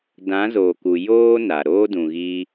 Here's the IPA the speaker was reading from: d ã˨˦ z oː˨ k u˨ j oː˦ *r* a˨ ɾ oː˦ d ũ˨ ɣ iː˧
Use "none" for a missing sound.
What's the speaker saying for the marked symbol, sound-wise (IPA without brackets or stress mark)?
n